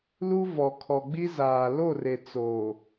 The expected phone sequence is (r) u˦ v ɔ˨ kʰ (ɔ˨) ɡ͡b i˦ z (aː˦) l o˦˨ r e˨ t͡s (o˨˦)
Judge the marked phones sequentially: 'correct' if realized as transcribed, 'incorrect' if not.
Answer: incorrect, correct, incorrect, incorrect

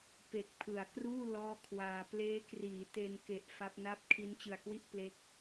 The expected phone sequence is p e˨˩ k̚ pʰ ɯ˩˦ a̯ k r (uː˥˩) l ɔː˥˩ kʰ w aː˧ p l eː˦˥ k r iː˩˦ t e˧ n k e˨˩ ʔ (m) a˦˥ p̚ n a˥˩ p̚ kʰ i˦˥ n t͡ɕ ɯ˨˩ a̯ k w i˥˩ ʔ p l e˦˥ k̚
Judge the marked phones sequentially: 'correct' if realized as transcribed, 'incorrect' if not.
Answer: correct, incorrect

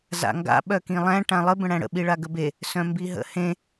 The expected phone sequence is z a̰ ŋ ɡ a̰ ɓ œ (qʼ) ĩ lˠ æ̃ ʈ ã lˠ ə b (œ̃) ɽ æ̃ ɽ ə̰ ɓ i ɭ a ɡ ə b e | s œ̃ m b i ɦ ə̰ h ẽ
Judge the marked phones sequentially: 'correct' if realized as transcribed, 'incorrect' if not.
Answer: incorrect, incorrect

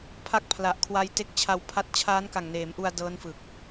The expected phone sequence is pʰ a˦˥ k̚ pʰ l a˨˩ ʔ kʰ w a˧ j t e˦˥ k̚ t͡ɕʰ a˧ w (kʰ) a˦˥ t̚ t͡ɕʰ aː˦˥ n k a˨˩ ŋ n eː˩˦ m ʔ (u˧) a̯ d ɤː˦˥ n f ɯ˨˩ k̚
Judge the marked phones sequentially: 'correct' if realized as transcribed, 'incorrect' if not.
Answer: incorrect, correct

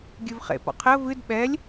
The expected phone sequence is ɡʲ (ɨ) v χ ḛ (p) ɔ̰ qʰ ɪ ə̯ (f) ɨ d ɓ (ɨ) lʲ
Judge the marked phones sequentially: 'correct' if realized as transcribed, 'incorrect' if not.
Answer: correct, correct, incorrect, incorrect

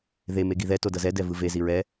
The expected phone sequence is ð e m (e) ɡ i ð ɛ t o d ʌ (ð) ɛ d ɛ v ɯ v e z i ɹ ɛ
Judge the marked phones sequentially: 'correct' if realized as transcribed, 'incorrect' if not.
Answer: correct, incorrect

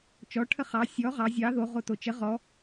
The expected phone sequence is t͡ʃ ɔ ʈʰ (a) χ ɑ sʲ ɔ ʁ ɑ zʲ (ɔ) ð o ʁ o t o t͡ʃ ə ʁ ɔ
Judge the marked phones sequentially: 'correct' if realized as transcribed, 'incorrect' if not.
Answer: incorrect, incorrect

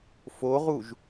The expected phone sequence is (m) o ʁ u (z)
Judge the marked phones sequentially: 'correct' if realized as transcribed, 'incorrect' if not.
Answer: incorrect, incorrect

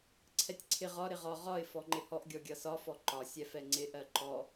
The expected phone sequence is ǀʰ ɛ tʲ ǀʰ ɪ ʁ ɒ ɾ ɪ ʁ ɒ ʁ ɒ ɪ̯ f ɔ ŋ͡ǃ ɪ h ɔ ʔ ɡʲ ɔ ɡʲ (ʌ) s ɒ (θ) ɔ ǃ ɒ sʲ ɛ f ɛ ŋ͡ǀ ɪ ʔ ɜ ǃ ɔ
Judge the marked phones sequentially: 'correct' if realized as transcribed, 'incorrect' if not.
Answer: correct, incorrect

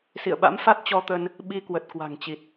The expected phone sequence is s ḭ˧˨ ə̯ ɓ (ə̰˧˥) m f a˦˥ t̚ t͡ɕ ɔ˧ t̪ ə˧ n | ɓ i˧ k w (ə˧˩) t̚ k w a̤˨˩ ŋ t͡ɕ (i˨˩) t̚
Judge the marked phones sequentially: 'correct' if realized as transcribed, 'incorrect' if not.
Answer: incorrect, incorrect, correct

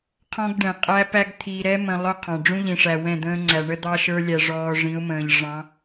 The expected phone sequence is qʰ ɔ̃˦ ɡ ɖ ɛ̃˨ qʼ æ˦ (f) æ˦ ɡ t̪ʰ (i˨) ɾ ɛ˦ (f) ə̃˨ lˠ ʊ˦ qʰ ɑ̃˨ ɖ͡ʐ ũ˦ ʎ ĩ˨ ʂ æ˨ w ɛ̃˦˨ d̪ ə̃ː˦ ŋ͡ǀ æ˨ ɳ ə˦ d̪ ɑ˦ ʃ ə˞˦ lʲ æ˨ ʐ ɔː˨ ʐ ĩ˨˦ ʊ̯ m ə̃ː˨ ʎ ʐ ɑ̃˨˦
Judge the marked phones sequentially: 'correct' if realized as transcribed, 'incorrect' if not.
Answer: incorrect, correct, incorrect

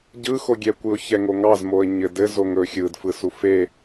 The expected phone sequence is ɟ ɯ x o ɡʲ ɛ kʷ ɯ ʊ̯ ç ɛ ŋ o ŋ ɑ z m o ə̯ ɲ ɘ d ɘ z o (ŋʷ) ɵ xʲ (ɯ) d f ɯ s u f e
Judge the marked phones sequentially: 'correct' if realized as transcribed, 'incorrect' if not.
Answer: incorrect, correct

